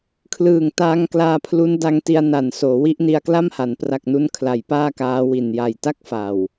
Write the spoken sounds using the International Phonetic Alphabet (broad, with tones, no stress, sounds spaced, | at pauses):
kʰ l ɯː˨˩ ŋ t aː˧ ŋ k l aː˧ pʰ l u˦˥ n d a˧ ŋ t i˧ a̯ n a˨˩ n s oː˩˦ w i˦˥ ʔ n i˧ a̯ k l a˥˩ m h a˩˦ n p r a˨˩ k̚ n u˧ n kʰ l a˩˦ j p aː˥˩ k aː˦˥ w i˨˩ n j a˨˩ j t a˦˥ k̚ f a˨˩ w